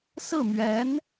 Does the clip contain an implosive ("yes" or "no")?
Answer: no